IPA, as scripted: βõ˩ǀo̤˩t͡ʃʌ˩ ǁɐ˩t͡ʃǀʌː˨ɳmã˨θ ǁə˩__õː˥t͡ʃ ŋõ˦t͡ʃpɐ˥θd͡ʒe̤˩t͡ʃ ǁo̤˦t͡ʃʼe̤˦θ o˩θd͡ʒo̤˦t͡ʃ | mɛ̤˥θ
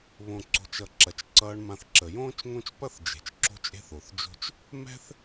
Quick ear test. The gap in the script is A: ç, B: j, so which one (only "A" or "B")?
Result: B